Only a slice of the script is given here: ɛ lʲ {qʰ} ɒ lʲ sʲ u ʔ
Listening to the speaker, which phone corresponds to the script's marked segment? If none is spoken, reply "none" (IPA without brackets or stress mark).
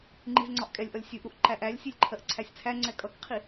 ʔ